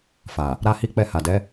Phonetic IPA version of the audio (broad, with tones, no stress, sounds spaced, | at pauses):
f a˨ | ɾ a˦ h i˦ k͡p ɛ˦˨ h a˨ d ɛ˨˦